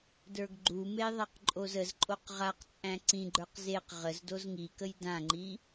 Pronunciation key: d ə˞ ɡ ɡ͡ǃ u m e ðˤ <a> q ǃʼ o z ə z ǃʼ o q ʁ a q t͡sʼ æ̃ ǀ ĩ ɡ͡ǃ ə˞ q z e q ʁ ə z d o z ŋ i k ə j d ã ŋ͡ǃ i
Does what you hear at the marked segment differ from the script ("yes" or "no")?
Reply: no